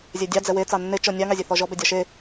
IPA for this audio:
zʲɛdʲɑ d͡zɛwe t͡sɑnːe t͡ʃɔnʲɑ ŋɑzʲeθɔʒɔ bɛdʲɒʃe

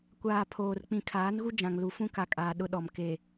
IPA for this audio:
kʷaː˨ pʰoː˨r k͡pĩ˨kʰaː˨˦nɣu˦ d͡ʒã˨ŋlu˨fũ˦ ka˨kʼaː˨ ɗʊ˦ɗɔ˨m ke˨

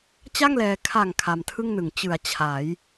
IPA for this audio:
t͡ɕa˥˩ŋlɛː˧ kʰa˨˩ŋ kʰa˧mtʰɯ˥˩ŋnɯ˨˩ŋ t͡ɕɯ˩˦a̯ t͡ɕʰa˩˦j

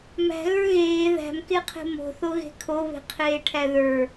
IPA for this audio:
mæ̤ɣə˞ ɣeː ðæ̤mkeqʰe̤ mo̤θoɣe̤ kʰoβe̤qʰeːʈʰæ ðə˞

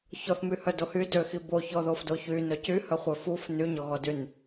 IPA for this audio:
çɔθmyhœdo hy døxi boçɔðofdo çynœc yhœχʷœ fuf nyɲɔɣɔdyn

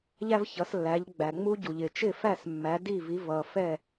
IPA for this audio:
ʎæ˥vçʌ˩˥slːæ˩˥ʎ ɡ͡bæ˩ŋ͡mu˥ɟu˩ʎɪ˩ t͡ʃɪ˥˩fæ˥˩s mːæ˩˥ di˥˩vi˩˥ vʌ˩fɛ˥˩

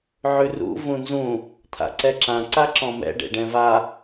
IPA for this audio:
ʕʉrṵ vũnzũ | t̪ʰa̰ǀɛǁã ǀaǁɔ̃mɛ̰ ɖḛɖɛ̃va

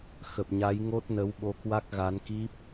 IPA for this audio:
xə˨˩p̚ɲa˨˦j ŋo˦˥t̚nə˨˦w ɓo˨˦kwa˦˥k̚ɣa˨˦n ki˦˥p̚

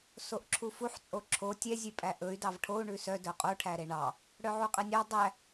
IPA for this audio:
soʔǁʰufuħ t͡sʼoǁʰo tʲɛ zʲʉpʼæʔɵy̯ dɑvʈʰou̯ ɳʉsœ dœqʼo ʈʰæɾeɳɑ | ɽœʕuqʼɛnʲɑ dˤæ

